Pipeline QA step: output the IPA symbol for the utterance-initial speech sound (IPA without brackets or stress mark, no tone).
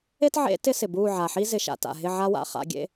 e